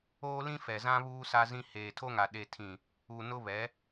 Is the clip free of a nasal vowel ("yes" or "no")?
no